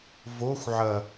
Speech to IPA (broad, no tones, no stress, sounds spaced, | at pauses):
v o xʷ ʕ ɐ